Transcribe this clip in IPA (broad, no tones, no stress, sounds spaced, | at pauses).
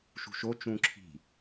ʃ ṳ ʃ o t͡ʃ ũ ǁʰ i̤